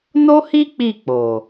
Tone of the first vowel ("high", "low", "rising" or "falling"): high